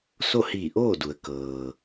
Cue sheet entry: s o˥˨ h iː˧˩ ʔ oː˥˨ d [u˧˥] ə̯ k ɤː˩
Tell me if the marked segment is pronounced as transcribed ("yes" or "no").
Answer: no